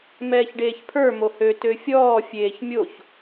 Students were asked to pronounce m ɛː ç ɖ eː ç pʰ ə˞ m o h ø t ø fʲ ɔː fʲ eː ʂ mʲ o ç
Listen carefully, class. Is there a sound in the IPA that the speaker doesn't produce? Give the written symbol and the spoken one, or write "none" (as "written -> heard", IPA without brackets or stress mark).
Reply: ʂ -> ç